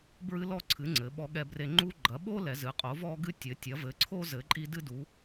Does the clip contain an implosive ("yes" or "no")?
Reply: yes